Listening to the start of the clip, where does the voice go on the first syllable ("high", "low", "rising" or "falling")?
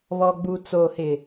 low